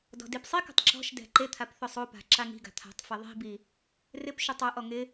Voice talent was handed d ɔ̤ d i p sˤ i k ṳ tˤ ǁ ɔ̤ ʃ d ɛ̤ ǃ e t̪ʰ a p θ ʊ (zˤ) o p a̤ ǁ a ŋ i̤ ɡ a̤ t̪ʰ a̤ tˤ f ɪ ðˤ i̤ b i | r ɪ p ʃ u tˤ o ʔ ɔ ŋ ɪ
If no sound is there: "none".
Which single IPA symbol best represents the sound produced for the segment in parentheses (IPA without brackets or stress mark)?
sˤ